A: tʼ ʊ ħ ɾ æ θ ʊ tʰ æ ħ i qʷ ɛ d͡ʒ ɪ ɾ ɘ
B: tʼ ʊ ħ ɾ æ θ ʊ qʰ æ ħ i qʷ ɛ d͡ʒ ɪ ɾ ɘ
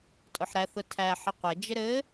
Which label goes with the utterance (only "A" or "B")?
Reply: A